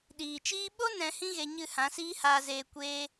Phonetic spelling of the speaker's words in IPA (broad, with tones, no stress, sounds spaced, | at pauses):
ɗ iː˨ t͡ʃ iː˦ ɓ o˦ n ɛ̃˧ h ĩ˦ ɣ e˧ ɲ ɨ˦˨ h ã˨˦ s iː˦ h aː˧ z eː˧ kʷ eː˦